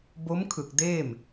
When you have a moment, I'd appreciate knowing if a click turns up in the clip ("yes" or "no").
no